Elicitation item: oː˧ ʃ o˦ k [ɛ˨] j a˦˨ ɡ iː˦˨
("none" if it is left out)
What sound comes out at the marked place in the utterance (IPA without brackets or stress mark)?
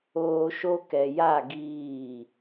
ɛ˨